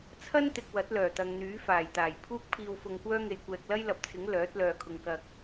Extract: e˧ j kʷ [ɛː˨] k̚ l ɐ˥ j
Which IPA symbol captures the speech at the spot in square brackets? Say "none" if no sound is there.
ɛː˧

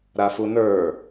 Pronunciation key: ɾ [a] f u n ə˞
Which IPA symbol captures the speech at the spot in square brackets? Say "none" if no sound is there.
a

